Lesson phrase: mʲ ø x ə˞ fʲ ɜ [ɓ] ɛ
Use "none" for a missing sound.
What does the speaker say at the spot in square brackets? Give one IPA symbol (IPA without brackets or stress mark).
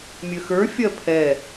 pʰ